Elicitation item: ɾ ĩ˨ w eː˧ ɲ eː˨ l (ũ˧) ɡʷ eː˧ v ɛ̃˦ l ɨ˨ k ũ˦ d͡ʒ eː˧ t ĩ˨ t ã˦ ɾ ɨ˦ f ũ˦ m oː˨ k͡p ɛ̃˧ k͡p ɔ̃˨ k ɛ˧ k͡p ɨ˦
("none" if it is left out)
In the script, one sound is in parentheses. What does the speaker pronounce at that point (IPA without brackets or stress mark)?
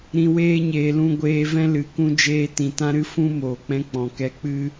ũ˧